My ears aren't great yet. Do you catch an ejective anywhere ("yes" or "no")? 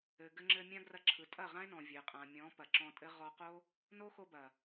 yes